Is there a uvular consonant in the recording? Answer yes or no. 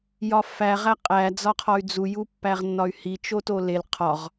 yes